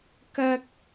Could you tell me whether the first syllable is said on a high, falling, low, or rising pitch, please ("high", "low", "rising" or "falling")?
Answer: high